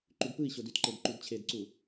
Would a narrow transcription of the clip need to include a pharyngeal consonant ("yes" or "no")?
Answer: no